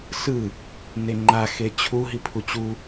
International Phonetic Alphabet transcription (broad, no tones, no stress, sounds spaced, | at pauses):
s ɯ | n e ŋ͡ǃ a x e t͡ɕʰ u ɦ i pʰ u t͡ɕ u